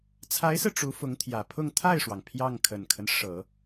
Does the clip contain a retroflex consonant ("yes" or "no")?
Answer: yes